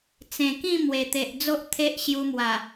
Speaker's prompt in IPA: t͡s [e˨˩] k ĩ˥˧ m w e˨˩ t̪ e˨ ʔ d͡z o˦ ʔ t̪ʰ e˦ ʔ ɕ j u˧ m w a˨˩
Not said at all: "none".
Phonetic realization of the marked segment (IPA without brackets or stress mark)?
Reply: ẽ˨˩